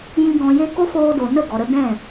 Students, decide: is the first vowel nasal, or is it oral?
nasal